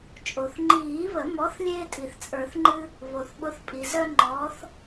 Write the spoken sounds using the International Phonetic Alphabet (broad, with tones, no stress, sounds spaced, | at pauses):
t͡ʃʼ o˩ θ ŋ͡ǃ iː˨˩˦ β ə˨˩˦ m ɔ˨˥ θ lʲ eː˦ tʼ i˩ θ t͡sʼ ə˞˨˩˦ θ ŋ͡ǃ ɨ˦ | β o˩ θ ɓ ʊ˨˥ θ pʼ i˩ z œ˦ ŋ͡ǃ ɔː˨˥ θ